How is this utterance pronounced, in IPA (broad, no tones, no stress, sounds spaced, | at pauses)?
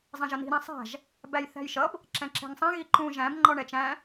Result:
zˤ ɛ̃ ʒ ʌ n i̤ ɾ ĩ sˤ æ̤ ʒ | b æ j θ æ̤ j ʃ ʌ b | ǁ ɛ̃ ǁ ɛ̤ ŋ sˤ æ̃ ɣ i ǃ ũ ʒ æ̃ b ŋ͡ǃ ɔ ɳ ɛ t͡ʃ æ̃